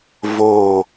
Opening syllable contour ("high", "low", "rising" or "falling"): low